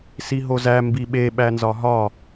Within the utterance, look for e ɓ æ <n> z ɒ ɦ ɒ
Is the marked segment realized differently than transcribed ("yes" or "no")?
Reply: no